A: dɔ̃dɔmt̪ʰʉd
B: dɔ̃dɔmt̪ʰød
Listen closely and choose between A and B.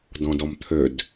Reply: B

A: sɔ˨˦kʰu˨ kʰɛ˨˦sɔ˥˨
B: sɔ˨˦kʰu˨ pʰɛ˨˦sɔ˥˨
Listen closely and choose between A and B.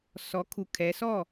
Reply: A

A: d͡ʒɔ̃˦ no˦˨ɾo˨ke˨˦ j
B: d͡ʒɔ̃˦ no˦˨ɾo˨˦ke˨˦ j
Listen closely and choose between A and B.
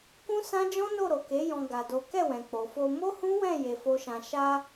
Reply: A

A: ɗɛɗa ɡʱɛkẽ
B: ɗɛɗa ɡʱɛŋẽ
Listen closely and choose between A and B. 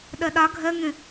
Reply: B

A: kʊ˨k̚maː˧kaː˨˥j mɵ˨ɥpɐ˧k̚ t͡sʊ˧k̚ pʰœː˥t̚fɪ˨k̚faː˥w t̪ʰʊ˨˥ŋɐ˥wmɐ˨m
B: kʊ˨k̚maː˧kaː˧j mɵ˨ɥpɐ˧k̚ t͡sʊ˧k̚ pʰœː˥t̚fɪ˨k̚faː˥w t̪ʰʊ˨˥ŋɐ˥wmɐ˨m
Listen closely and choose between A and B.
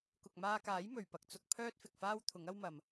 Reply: A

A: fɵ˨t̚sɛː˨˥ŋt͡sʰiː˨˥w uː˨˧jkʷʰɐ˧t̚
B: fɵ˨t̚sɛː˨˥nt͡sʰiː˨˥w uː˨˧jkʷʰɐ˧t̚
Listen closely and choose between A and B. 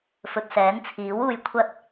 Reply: B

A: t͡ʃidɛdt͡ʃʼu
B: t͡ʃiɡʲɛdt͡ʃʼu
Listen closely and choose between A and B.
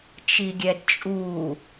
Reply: B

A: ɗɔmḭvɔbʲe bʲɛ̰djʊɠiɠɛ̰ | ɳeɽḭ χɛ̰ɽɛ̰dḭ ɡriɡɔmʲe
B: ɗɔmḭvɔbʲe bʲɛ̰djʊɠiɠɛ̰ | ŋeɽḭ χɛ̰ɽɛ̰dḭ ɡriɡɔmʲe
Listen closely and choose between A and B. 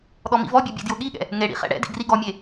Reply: B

